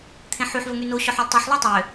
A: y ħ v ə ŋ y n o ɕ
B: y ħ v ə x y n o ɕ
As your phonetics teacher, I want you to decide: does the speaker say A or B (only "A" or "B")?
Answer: A